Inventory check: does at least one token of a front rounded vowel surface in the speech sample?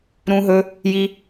no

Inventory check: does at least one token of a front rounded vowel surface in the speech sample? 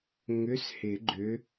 yes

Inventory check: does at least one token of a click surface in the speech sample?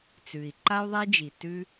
yes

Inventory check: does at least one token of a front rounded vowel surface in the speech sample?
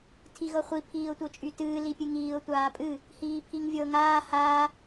yes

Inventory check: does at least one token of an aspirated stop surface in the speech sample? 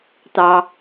no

